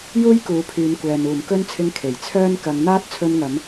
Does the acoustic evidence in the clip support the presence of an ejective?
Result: no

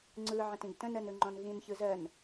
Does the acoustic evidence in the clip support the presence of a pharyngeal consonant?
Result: yes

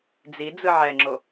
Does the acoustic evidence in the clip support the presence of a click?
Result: yes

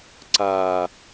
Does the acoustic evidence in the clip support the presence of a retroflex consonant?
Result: no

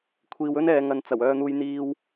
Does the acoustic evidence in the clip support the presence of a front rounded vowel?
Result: yes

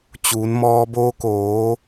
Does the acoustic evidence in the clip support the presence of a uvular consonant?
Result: no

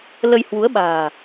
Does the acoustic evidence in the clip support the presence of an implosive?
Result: yes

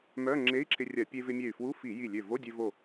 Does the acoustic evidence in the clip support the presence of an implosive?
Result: no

